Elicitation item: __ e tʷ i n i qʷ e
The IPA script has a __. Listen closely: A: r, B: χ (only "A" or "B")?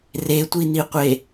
A